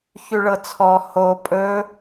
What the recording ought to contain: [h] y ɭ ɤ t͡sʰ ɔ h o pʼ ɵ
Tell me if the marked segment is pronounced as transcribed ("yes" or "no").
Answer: no